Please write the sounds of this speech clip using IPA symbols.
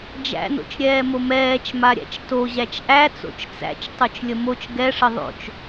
d͡ʒ æ̰ n o̰ t͡ʃ ɾʲ ɛː m o m ɛː t͡ʃ m a ɾʲ æ̰ t͡ʃ t o ʑ æ t͡ʃ ʔ æ t͡s o̰ t͡ʃ t͡s æ̰ t͡ʃ tˤ o t͡ʃ lʲ ə m o t͡ʃ ɡ ɛ ʂ ə ðˤ o̰ t͡ʃ

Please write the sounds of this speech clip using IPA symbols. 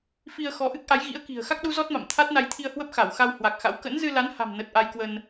f i˧ ə̯ x ɔ˨˦ ʔ ɨ˦˥ k̚ ʔ a˨˦ j ɣ ḭ˧˥ ə̯ k i̤˨˩ ə̯ x a˦˥ k̚ ɗ u˨˦ z ɔ˦˥ t̚ m a̰˧˨ m t̪ʰ a˦˥ t̚ n a˧ j t̪ʰ i˧ ə̯ h w ə˦˥ p̚ x a˧˩ w x a˧ w h w a˨˩ k̚ x a̰˧˥ w k ə̰˧˥ n z ɨ˧ l a˨˦ n h a̤˨˩ m n ə˨˩ t̚ ʔ a˧ j k w ə˧ n

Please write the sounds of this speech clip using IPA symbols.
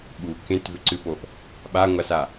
ɓ u k ẽ t v ʏ ǀ ɨ p o ʔ | ɓ a ŋʷ a s a

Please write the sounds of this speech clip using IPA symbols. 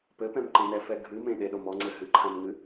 p ɘ p ɛ̃ m ǃ ẽ n ɛ f ɛ ɡʱ ɨ m ẽ ɗ e ɗ o m ɔ ŋ͡ǀ ɘ ɦ ɨ ǃʰ ã m ŋ ɨ

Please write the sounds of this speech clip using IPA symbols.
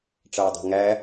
ʈ͡ʂ ʌː dˤ i̤ ŋ æ

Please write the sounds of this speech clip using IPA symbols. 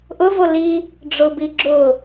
ʔ ʊ v o l i | ɖ͡ʐ ʊ b i ɡ͡ǁ ʊ

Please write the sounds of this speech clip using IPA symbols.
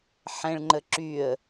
ħ ɛ̃ ɭ ŋ͡ǃ ə ǁ y ə̯

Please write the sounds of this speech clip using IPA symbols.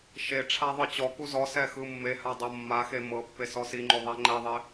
ʃ e ʈ͡ʂʰ a ðˤ ɯ t͡ɕ ɔ k u z ɔ s ɛ x ɯ mː e h a dˤ ɤ mː a x e m ɤ pː e s ɔ s i ŋ͡ǃ o ðˤ ɛ ŋ͡ǃ ɛ ðˤ e

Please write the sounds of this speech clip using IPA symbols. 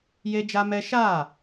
j e˦ d͡ʒ a˦ m ɛ˦ ʃ a˦˨

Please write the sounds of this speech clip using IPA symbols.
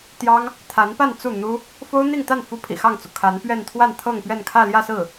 t̪ j ɑ˥ ŋ | t̪ʰ a˧˥ n p a˥˧ n t͡s u˥˩ n̪ u˥ | f o˥ ʊ̯ n̪ i˥˧ ŋ t̪ a˥˩ n f u˥ pʰ ḭ˨˩ x ɑ˥˩ ŋ t͡s u˩ kʰ a˧˥ n p ɥ ɛ˥˧ n t̪ʰ w a˥˧ n t̪ʰ ɤ˥˧ ŋ p ɥ ɛ˥˧ n kʰ ä˥˧ l j ä˥˧ s ɹ̩˥˩

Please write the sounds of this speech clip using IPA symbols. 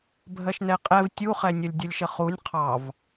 bʱ ɜ ʃ n ɛ qʼ ɛ v tʲ u χ ɛ nʲ ʌ lʲ dʲ ʌ lʲ ʃ ə χ u nʲ qʰ ɑ v

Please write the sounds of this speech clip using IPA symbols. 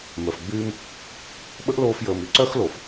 m œ˨ f ɡ͡b yː˦ m | ɓ ə˦ ʔ l oː˧ f j əː˨ m y˦ ǀ œ˦ x l o˨ f

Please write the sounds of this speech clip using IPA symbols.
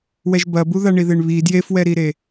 w ɛ ʒ b ɐ b u ð a ɳ i ð e ɳ β i d j e f w ɛ ɾ i ɾ e

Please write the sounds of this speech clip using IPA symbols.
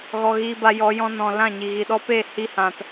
ɣ ɔ˨ ɣ iː˧ b a˧ j ɔ˨˦ j ɔ̃˧ n ɔ̃˨ l ã˦˨ ɲ i˨ ɣ i˨ ɗ ɔ˦ p e˦˨ h i˦ h ã˧ t

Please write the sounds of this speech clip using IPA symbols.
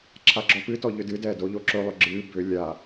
ǁʰ a ɡ͡ǁ ɔ p ɨ t ɔ ʎ ʏ d ɨ d ɛː d o ʎ o ǁ ɵ lˠ ʏ ɡ͡ǁ ɨː b ʏ lʲ a

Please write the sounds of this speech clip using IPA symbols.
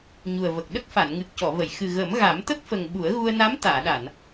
ɲ u˨˩ ə̯ v ə˨˩ k̚ ɗ ə˦˥ k̚ f a˨˩˨ n ŋ ɨ˨˩ k̚ c ɔ˨˩˨ v ə˨˩˨ j x ɨ˨˩ ɣ ə˨˩˦ m ɣ a˨˩˦ m t̪ ə˦˥ k̚ f ə˨˩ ŋ ɓ u˨˩˦ ə̯ ɣ u˧ ə̯ n a˧˥ m t̪ aː˨˩˨ ɗ a˨˩˨ n

